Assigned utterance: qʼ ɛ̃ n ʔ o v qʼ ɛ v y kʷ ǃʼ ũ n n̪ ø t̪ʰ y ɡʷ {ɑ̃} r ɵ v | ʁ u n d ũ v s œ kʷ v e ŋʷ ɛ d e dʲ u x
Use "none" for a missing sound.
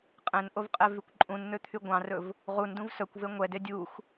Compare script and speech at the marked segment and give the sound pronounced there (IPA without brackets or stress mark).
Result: ɑ̃